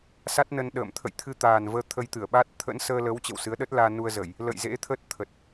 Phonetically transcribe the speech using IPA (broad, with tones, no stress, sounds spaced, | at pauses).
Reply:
s a˦˥ t̚ n ə˧ n ɗ ə̰ː˧˨ m t̪ʰ ə̰˧˨ j t̪ʰ ɨ˧ t̪ aː˨˩ n v əː˧ t̪ʰ ə˧ j t̪ ɨ˧˩ ə̯ ɓ a˦˥ t̚ t̪ʰ ə̰˧˥ n s əː˧ l ə˨˦ w t͡ɕ ə̰˧˨ w s ɨ˨˦ ə̯ ɗ ə˦˥ t̚ l aː˧ n u˧ ə̯ z ə˧˩˨ j | l ə̰˧˨ j z ḛ˧˥ t̪ʰ ə˦˥ t̚ t̪ʰ ə˨˩ t̚